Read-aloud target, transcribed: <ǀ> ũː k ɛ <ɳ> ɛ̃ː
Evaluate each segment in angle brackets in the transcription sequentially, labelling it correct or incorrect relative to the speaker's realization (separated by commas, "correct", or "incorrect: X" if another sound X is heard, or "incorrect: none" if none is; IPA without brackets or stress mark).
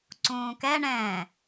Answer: correct, correct